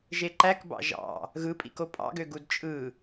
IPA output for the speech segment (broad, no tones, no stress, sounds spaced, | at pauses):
ʒ e ǃ æ k b ɑ̰ ʒ ɑ̰ | ɣ ɯ pʼ ḭ k o pʼ ɑ̰ ɡ ø ɡ u d t͡ʃʼ ɯ